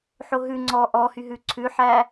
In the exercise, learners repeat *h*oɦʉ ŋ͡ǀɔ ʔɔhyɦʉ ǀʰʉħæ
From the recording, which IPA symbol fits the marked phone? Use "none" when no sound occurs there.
ħ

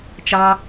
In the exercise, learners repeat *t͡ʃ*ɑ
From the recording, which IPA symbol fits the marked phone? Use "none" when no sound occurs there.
t͡ʃ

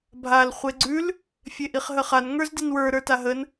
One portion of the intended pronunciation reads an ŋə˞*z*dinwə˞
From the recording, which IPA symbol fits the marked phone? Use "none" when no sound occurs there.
z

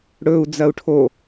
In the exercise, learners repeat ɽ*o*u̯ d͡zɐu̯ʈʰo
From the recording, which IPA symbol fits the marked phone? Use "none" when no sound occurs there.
ɵ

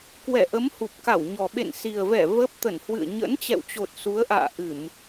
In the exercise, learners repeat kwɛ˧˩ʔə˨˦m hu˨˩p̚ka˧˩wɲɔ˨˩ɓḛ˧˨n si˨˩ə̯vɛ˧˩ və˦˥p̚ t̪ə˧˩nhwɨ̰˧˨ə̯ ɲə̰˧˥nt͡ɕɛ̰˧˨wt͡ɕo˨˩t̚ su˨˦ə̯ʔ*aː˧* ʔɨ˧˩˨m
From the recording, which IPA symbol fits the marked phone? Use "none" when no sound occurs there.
a̰ː˧˨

